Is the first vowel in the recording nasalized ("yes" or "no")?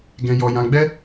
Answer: yes